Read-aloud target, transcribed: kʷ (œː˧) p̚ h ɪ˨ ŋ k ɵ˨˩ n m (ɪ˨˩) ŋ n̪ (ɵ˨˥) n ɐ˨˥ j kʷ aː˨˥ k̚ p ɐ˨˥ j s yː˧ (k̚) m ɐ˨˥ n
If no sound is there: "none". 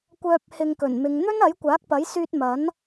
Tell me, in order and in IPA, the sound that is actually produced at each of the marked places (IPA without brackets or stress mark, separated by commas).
œː˧, ɪ˨˧, ɵ˥, t̚